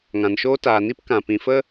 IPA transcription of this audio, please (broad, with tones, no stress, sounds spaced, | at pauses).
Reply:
ŋ ã˨ n ʃ oː˦ t aː˨ n i˦ p k ã˨ p ĩ˨ f ə˦